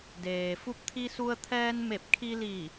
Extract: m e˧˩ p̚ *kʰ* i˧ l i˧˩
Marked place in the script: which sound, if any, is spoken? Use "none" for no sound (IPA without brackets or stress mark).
kʰ